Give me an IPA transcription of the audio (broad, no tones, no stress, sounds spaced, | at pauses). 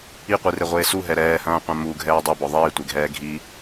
i qʷ i r e ʁʷ eː s u ɦ ɛ ɾ ɛː h ɐ̃ː qʷ ã m u ɡʱ ɛː dˤ e b ɔ ðˤ iː tʷ e ɡʱ ɛː ɡʱ i